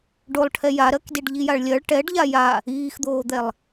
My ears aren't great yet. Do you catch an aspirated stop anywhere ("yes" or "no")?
yes